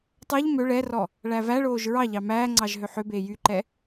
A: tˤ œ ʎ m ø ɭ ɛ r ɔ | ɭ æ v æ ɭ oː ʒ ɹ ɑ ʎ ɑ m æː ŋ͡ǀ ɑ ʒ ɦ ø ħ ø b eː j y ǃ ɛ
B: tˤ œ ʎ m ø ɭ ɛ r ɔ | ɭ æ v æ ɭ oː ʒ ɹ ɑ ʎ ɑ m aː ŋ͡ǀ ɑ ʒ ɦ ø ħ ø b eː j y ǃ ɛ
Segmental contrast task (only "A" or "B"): A